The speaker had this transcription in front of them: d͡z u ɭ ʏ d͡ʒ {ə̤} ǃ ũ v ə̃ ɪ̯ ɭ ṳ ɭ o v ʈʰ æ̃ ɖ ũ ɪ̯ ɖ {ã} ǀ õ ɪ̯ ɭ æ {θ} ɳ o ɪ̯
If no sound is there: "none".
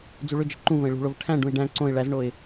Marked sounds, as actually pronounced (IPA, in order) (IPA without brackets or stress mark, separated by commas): ə̤, æ̃, z